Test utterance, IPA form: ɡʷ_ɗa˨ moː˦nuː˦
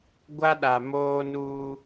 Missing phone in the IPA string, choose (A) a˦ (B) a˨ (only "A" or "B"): A